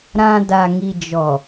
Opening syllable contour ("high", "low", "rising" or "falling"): low